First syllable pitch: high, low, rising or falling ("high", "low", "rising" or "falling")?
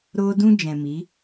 high